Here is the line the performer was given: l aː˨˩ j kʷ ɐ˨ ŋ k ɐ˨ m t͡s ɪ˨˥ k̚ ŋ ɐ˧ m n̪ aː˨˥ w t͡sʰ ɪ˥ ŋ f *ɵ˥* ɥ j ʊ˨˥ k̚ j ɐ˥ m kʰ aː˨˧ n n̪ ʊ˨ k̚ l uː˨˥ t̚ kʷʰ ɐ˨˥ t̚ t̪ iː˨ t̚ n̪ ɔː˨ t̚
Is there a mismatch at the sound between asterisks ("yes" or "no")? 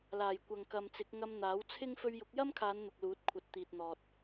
yes